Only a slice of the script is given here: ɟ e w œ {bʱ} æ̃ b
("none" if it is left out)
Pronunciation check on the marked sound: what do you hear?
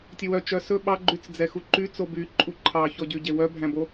bʱ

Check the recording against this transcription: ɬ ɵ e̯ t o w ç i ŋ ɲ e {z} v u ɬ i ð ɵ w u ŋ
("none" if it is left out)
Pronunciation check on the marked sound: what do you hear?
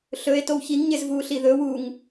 z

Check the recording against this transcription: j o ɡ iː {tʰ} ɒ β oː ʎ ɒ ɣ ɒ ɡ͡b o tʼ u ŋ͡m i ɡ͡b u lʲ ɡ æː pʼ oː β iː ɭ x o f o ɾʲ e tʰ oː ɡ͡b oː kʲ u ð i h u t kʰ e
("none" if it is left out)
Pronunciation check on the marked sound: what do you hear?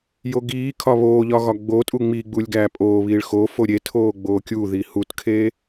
kʰ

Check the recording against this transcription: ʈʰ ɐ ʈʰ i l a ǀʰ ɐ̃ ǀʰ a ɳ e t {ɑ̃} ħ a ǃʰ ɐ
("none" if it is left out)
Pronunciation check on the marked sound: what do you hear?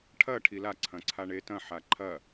ɐ̃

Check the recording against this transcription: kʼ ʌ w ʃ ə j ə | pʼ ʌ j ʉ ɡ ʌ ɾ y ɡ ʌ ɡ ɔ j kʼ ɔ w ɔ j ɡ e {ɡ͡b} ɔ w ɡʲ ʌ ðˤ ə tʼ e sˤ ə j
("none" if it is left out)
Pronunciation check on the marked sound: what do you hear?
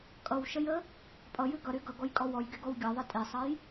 ɡ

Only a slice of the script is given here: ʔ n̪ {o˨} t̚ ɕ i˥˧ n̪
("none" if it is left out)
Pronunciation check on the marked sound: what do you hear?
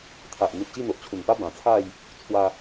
u˨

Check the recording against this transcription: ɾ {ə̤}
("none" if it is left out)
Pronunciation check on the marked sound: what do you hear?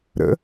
ə̰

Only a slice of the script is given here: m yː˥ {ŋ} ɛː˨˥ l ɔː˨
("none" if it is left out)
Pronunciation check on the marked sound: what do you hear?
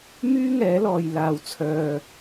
ŋ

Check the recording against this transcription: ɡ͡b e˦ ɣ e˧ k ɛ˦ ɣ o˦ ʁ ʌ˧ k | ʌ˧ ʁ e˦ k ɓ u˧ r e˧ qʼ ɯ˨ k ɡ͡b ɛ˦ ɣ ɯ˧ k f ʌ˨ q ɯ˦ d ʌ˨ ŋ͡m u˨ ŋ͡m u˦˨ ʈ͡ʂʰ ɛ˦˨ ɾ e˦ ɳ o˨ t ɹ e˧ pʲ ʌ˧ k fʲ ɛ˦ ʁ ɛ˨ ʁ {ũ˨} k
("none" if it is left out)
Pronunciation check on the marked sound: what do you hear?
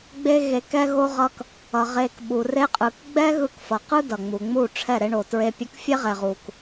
u˨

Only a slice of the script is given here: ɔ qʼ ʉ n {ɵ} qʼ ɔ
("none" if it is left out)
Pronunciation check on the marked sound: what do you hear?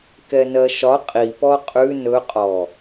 ɵ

